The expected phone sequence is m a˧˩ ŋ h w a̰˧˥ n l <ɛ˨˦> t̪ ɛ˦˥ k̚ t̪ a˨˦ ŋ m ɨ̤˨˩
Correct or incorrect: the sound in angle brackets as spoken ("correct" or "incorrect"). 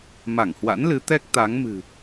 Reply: incorrect